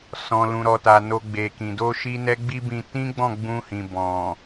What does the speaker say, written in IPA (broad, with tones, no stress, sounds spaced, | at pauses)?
s ɔ̃˨ l ũ˨ ɾ ɔ˨ t a˨ n o˧ ɡ͡b e˨ k ĩ˨ d o˧ ʃ i˦ n ɛ˦ ɡ͡b i˦ b ĩ˧ t ĩ˦ ɡ͡b ɔ̃˦˨ ɡ͡b ũ˧ h ĩ˨ b ɔ̃˨